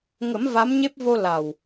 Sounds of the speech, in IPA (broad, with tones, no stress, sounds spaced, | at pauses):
ŋ ə˨˩˦ m v a˧˥ m ɲ e˦˥ p̚ v o˧ l a˨˩ w